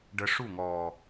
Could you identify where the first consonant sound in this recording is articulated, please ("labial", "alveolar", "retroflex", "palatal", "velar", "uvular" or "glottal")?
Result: retroflex